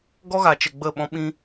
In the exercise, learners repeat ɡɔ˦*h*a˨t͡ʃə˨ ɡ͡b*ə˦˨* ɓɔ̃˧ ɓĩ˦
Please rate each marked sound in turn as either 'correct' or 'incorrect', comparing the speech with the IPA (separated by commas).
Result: incorrect, correct